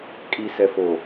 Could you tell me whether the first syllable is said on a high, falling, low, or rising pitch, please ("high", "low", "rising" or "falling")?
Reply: low